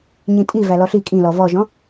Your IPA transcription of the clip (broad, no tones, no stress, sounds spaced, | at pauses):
ɲ ĩ tʼ i v æ l ɔ ɬ i kʼ ĩ l ɔ v ɔ ʒ ɔ̃